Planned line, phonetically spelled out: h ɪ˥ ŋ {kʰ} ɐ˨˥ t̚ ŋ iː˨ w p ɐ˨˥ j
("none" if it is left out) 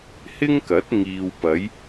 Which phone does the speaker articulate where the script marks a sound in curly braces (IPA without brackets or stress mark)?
k